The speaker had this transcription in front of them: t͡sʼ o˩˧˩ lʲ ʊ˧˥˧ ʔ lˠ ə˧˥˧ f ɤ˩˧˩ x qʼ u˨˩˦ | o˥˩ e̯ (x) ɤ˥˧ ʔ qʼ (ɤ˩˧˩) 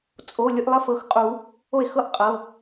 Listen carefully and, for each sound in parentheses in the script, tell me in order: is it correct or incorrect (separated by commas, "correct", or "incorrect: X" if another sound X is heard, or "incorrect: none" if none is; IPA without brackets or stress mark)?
correct, correct